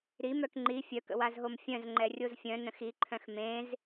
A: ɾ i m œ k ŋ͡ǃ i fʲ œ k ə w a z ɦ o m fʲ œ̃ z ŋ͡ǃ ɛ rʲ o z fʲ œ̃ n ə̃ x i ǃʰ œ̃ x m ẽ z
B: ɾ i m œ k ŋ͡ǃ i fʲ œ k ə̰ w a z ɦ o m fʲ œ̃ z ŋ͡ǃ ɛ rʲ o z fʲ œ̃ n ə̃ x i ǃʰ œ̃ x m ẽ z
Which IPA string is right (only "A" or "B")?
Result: B